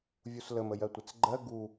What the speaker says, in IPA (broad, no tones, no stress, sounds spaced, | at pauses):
vʲ u s l ə m ə j ɜ tʷ ɪ t͡s ɡ͡ǃ ɜ ɡ u